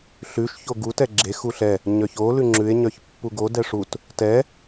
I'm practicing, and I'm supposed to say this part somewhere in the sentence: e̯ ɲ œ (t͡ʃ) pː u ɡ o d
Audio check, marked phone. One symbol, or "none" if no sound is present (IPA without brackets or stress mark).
ç